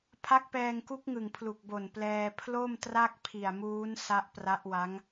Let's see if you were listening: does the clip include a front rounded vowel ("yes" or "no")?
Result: no